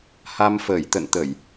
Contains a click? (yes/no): no